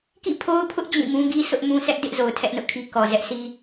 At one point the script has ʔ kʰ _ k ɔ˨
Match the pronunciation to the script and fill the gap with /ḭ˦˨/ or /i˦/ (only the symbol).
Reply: i˦